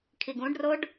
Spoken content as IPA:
kʰ i ɡ ũ ɖ r o ɖ

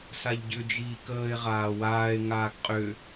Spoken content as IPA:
s a ʎ ɟ ʏ d͡ʒ iː k əː e̯ ʁ aː w aː e̯ ŋ aː ɡ qʼ ʏ

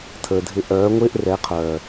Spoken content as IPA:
tʰ əː˨ dʱ ɪ˧ ʔ œː˨˦ ŋʷ ɪː˦ ʔ r ɛ˨˦ qʰ œː˨

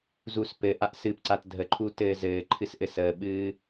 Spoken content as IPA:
z u s p ɘ ʔ a ʔ s ɨ p ǀ a t dʱ ə ǃʰ u t ɘː z ɘː ǃʰ ɨ s ʔ ɘ s əː ɓ ɨː

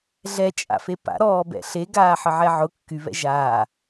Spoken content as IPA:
ɮ ɛ t͡ʃʼ a̰ f e p a̰ ɾ ɔː b ɛ̰ ɬ e ɡ aː ħ ə ʕ ɛ ʕ ʊ kː y β ɛ̰ ʒ aː

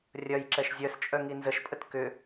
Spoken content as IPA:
rʲ ɐ j ǁ ɛ ʃ zʲ œ s t͡ʃʼ œ ŋ i n z ə ʃ pʼ ə t k ʏ

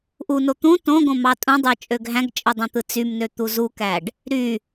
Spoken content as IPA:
ʔ u n o t̪ ũ t õ ɡ õ m ɑ tʼ ũ dˤ ɯ t͡ʃʼ ø ɡ ɦ æ̃ ɡ t͡ʃʼ ɯ dˤ ẽ t̪ ɯ t͡s y m n ø t̪ u z u k æ ɖ | ɾ y

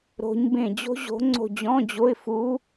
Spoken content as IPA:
ɾ o̤˧˥ ɲ b ẽ˦˨ d͡ʑ o̤˥ ʑ o̤˧˥ ŋ͡ǀ o̤˦˨ d͡ʑ ɔ̃˧˥˧ d͡ʑ o˧˥˧ ɪ̯ f u˧˥

